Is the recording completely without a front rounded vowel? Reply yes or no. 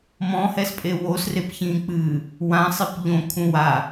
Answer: yes